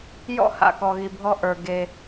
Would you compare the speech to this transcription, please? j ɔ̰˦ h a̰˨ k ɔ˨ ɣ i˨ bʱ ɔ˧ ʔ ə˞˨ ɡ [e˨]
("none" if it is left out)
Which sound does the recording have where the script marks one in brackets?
e˨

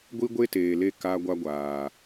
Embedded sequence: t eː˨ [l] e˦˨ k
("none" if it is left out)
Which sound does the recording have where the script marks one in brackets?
l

